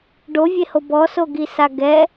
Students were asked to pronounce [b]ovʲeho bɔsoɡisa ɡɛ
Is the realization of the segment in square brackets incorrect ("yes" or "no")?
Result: yes